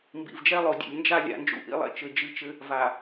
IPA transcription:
mbḭ˨vd͡ʒɛ˦lˠo˨ dʲḛ˨lʲnd͡ʒa˦ lʲa̰˨ nd͡ʒṵ˦ʔḭ˦lˠḛ˦ t͡ʃɘ˨d͡ʒɨ˦˨t͡ʃɘ˦ | va˨

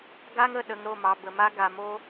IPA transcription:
ɡa˦ŋ ə˦˨ɗə˨ŋ ɾo˦˨mɑ˨ bə˨ma˦ ɡa˨mo˦

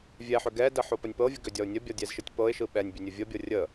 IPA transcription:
vʲɛħʏ ɡɛdə ħopənʲpɤvʲə ɡʏdʲɒʊ̯nʲəbʲɒ dʲɛzʃɯtʲpɤɪ̯ʃɯ ɓɛnʲbʲə nʲəvʲəbʲɤ rʲə

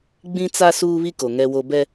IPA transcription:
ɡ͡bĩ˦t͡sa˦ suː˦βi˦ko˨ ŋɛ˦wo˦ bɛ˦

